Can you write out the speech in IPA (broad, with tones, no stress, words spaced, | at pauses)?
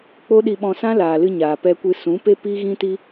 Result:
k͡po˦ɗi˧ɓɔ̃˧ sã˦laː˨lɨ˧ ɲaː˨pɛ˧kʷɨ˧ sũ˨˦pe˦pi˦ ɣĩ˦ti˦